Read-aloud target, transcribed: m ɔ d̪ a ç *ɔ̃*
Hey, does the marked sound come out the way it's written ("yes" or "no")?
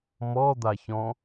yes